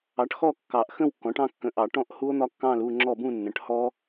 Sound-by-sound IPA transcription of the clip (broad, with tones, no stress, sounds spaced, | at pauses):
ɑ˩˥ ʈ x ɔ˥˨ kː ɑ˨˩˦ ʔ x ə̃˥˨ w kː ɔ̃˩˥ ʈ ɑ̃˥˨ kː ə̃˩˥ ʔ ɑ˨˩˦ ʈ ɔ̃˥˨ ʔ h u˦˥ o̯ n̪ ɒ˦˥ kː ɑ̃˥˨ l u˥˨ ŋ͡ǁ ɔ˥˨ b ũ˥˨ nː ə̃˩˥ ʈ h ɔ˦˥